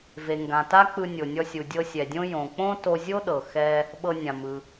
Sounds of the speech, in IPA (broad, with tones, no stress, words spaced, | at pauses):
ve˩ŋɡã˩ta˥ k͡pɯ˧nʲo˩nʲɔ˧sʲu˩ dʲɤ˧sʲɛ˩dʲõ˥ jõ˩k͡põ˥ to˧zʲo˥ ɗɤ˩xɛ˧ | ɓɤ˧nʲã˩mɯ˩